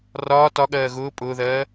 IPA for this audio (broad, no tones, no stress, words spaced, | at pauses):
rɒː tɒɠɜː ɣʊː pʼʊːðɜː